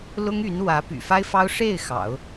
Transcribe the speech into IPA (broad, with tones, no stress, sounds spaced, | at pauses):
l ʊ˥ ŋ y˧˥ n w ä˧˥ p y̰˨˩ f a˥ ɪ̯ f ɑ˥ ʊ̯ ʂ e˥˩ ɪ̯ x ɑ̰˨˩˦ ʊ̯